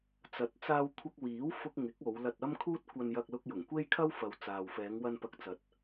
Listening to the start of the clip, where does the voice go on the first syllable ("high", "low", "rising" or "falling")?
rising